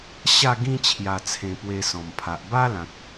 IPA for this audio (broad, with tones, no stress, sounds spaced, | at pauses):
ɕ a˥˧ ɡ ĩ˦ t͡ɕʰ j a˨˩ t͡sʰ ẽ˨˩ p w e˧ s ɔ̃˨˩ m pʰ a˨ ʔ b a˦ l ã˨ k̚